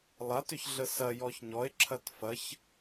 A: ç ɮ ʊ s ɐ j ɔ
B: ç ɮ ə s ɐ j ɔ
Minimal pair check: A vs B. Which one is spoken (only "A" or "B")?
B